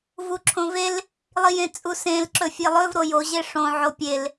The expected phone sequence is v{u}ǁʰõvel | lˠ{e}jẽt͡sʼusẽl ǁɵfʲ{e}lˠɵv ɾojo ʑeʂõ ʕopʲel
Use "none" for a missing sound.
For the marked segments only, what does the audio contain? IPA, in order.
u, i, e

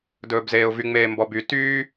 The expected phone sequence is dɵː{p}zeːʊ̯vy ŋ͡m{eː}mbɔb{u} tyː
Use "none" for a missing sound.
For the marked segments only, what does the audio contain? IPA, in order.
b, eː, y

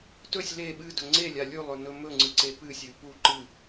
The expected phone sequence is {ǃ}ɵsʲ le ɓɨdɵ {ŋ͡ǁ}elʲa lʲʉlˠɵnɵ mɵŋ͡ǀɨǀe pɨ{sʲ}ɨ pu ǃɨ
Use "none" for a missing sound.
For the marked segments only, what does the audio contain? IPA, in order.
t, ŋ͡ǀ, sʲ

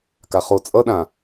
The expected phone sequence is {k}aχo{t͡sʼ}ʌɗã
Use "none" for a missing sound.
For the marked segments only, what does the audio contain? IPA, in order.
k, t͡sʼ

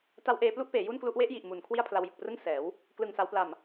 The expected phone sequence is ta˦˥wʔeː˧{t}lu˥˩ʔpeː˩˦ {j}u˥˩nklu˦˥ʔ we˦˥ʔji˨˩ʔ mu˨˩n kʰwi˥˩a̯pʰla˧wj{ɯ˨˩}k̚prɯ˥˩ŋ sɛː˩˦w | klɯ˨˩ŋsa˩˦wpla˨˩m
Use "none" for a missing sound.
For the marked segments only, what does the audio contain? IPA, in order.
p, j, ɯ˨˩

